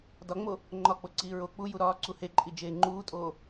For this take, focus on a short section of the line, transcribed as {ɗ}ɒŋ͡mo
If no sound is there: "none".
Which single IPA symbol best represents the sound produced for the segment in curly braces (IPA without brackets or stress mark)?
d